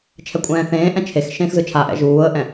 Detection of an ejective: present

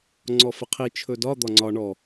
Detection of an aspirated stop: present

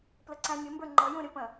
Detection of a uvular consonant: absent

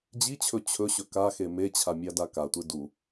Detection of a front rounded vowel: absent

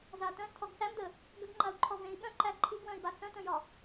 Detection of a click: present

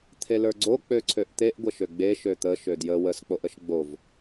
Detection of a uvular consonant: absent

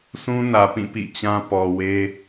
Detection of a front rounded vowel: absent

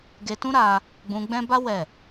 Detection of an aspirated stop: absent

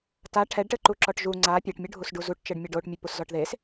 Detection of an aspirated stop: present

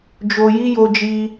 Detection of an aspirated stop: absent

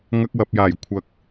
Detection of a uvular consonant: absent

